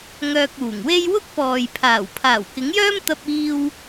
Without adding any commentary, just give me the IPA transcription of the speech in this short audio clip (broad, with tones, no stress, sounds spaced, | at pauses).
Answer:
ŋ œː˧ k̚ uː˨˩ ŋ w e˥ j w ʊ˥ k̚ p ɔː˨ j pʰ aː˨˩ w pʰ aː˨˩ w k ɪ˨˥ ŋ j œː˥ m t̪ ɐ˧ p̚ iː˧ w